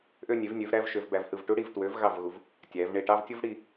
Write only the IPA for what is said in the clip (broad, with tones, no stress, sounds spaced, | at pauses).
ʔ ø˧ nʲ e˩˧ v nʲ ø˩˧ v ɾ æ˧ v ʃ ø˩˧ v b æ˩˧ v h ɯ˧˩ v ʈ u˥ ɽ i˧˩ v t w ø˩˧ v ɣ ɑ˧˩ v ɣ u˩˧ v | tʲ æ˩˧ v ɳ e˧˩ ʈ ɑ˥˧ v tʲ o˥ v ɽ i˧